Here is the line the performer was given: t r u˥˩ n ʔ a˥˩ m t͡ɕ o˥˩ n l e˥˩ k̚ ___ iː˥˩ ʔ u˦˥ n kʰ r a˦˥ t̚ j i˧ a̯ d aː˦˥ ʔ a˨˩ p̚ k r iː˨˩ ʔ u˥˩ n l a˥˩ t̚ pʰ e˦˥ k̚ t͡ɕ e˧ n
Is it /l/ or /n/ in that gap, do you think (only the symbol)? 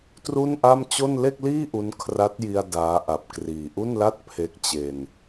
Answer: l